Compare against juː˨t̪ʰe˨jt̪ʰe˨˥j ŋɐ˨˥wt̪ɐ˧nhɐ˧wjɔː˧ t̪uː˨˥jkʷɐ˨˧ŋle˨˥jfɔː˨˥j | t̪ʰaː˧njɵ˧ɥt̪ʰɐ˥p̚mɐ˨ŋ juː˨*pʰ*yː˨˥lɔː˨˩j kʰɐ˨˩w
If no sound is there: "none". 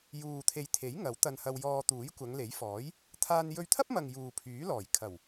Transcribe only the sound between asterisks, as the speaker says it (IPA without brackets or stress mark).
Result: pʰ